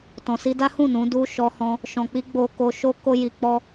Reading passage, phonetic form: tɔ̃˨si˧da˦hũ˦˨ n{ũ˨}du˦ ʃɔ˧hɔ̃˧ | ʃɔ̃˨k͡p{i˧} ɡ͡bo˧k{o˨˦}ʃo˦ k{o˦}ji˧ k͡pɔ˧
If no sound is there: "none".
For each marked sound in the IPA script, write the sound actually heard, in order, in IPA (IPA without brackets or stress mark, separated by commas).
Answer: ũ˨˦, i˧, o˧, o˦